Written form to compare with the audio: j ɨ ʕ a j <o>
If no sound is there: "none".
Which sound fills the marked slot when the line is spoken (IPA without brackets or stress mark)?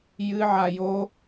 o